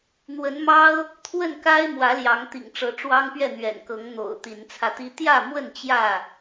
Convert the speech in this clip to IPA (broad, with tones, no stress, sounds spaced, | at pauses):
n̪ w ə˨˦ n m ɑ˦ ʊ̯ | t̪ʰ w ə˥˨ n k a˦ ɪ̯ m w ä˨˦ l j ɑ˨˦ ŋ t̪ ḭ˨˩ ŋ ʈ͡ʂ ɤ˨˦ ʈ͡ʂ w ɑ˦ ŋ p ɥ ɛ˥˨ n̪ ɥ ɛ̰˨˩ n k ɤ˨˦ ŋ n̪ o̰˨˩ ʊ̯ t̪ i˨˦ n t͡sʰ ä˧ t̪ i˦ t̪ j ä˥˨ m w ə˥˨ n t͡ɕ j ä˥˨